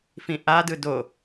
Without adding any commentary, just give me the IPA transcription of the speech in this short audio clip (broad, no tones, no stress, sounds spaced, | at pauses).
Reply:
f ĩ ʔ a d ɯ d o